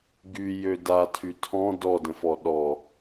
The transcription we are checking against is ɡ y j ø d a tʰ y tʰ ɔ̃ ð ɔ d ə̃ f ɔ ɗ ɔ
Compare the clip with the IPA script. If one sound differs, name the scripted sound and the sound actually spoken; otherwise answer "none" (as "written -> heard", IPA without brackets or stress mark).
ð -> d